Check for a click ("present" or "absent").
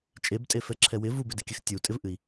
present